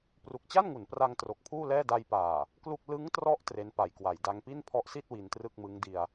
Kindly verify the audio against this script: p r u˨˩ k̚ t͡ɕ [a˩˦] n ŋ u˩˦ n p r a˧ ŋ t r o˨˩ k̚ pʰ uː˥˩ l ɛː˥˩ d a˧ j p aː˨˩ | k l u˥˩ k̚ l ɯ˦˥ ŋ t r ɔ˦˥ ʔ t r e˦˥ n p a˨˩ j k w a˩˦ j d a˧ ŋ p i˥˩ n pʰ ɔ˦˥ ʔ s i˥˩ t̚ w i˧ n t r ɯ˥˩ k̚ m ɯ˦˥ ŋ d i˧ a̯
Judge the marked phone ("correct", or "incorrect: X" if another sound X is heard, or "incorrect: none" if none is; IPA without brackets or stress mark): incorrect: a˥˩